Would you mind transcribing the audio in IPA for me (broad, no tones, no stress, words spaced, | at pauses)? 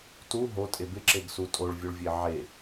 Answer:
tu ɦotʼe bɪǁeɡsu tʼoɭvʲuɭvʲe ʕe